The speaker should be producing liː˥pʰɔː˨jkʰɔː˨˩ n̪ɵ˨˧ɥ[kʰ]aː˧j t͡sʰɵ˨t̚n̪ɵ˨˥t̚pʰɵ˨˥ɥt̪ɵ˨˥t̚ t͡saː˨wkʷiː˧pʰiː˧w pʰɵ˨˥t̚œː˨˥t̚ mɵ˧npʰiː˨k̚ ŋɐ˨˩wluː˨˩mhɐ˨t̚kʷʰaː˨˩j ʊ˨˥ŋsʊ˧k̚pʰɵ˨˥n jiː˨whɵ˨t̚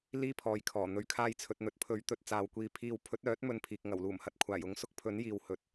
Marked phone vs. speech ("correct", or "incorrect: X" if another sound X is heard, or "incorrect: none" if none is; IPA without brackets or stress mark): correct